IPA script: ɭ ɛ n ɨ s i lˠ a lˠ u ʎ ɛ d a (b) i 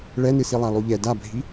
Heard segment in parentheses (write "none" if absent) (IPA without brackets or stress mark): bʱ